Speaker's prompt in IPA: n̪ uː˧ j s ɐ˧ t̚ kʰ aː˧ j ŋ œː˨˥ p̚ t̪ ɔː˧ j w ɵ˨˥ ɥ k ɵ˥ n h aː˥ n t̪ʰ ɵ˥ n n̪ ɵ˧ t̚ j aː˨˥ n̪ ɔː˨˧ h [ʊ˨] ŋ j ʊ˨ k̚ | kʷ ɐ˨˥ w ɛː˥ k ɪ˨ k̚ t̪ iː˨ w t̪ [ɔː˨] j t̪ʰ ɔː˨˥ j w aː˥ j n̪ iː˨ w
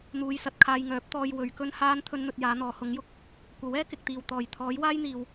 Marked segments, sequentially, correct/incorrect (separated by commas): incorrect, correct